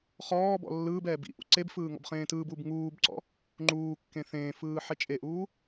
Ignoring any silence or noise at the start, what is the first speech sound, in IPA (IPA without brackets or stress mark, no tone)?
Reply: χ